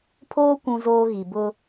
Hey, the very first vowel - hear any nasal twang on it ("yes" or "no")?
no